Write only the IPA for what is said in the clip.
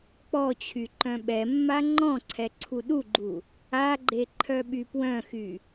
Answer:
k͡p ɔ t͡ɕʰ y ǃ œ̃ ɓ ɛ mː a ŋ͡ǃ ɔ̃ ǀʰ ɛ ǀʰ u ɗ u ɡ͡ǃ u | a ɡ͡ǃ e ǃʰ œ ɓ y p w œ̃ x y

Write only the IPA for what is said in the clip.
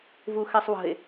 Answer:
v u x ɛ sˤ w ə̤ e̯

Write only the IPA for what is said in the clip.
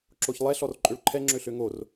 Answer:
ǁ o ç lˠ ɛ ɬ ɔ r ǃʼ ø ɭ ǃʰ ɛ ŋ͡ǁ ø ɬ ø ŋ o r

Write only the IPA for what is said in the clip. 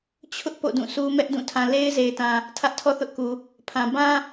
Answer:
t͡ɕʰ ʊ˦ ʔ p o̰˦˨ d ũ˦˨ s u˦ m ɛ˦ ʔ d ũ˦˨ tʰ ã˨ l e˦ ɪ̯ z e˨ ɪ̯ t ã˨ | tʰ ä˦ ʔ tʰ ɔ˦ θ ʊ˦ ʔ k u˨ | pʰ ã˨ b ã˦

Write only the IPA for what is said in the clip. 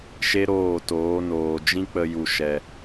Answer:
ʃ e˦ ɾ oː˦˨ t oː˨˦ n oː˨ d͡ʒ ĩ˦ k͡p ə˧ j u˨ ʃ ɛ˨

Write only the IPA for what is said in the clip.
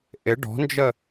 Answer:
ʔ ɪ ɖ ɔ̤ n d͡ʒ ə

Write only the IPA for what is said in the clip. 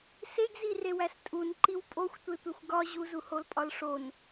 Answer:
s e ɡ z i r e w æ s tʼ u n ǃ i w pʼ o xʷ tʷ e tʷ e xʷ ɡ ɒ ʑ u z u h o l pʼ ɒ l ʂ o n

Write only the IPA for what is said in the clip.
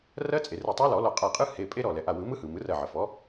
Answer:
r ɜ˦˥ t͡sʼ e˩ r ɯ˧˩ tˤ ɜ˦˥ l ɔ˨˩˦ l ɔ˧˩ qʼ a˧˩ qʼ ɯ˦˥ h e˩˧˩ pʼ e˦˥ ɾ ɔ˧˩ l ɛ˩ ʔ a˩˧˩ w ɯ˨˩˦ m ɯ˦˥ h ɯ˩ m ɯ˩˥ r ɜ˧˩ ʕ ə˩ f ɔ˩˥

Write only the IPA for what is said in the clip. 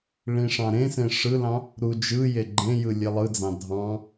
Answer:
ɭ ĩ ʂ ɑ̃ ɾ ẽ s ẽ ʂ ɯ l ɑ̃ | ɾ u d͡ʒ ɯ j e ɡ͡ǃ ẽ j ɯ lʲ e lˠ ɯ d͡z ɑ̃ dʱ ɑ̃

